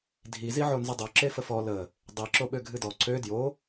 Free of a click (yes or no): no